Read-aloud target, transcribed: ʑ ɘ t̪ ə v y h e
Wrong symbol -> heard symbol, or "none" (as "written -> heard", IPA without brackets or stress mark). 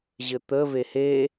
y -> e